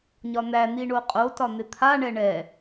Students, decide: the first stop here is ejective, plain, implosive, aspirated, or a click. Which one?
ejective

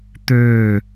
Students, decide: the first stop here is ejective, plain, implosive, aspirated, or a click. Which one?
plain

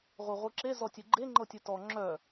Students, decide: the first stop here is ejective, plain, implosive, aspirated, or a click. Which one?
click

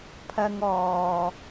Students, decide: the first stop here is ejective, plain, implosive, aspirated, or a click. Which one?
aspirated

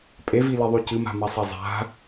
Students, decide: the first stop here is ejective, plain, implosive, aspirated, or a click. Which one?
ejective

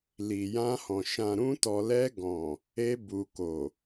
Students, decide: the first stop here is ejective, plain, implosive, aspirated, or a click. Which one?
plain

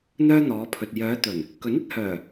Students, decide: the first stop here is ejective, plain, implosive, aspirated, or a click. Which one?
aspirated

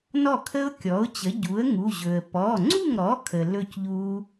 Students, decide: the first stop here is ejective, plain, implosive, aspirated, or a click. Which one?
aspirated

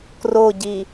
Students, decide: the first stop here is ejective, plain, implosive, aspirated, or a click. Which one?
plain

